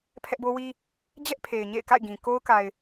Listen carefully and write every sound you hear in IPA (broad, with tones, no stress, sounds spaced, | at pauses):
pʰ ɛ˦ ʔ b o˦ w i˦ | d͡ʑ ɛ˦ ʔ pʰ e˨ ɪ̯ ɲ ḛ˦˨ ɪ̯ k a̰˦˨ ɪ̯ ɡ ĩ˨ k o˦ ʊ̯ k a˨ ɪ̯